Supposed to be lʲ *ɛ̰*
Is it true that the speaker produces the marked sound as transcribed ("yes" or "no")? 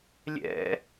yes